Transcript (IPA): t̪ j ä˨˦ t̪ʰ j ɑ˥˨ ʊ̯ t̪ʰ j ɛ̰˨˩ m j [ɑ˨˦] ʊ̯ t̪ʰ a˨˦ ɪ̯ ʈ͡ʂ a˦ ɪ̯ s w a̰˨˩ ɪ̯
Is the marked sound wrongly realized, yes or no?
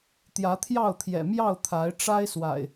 yes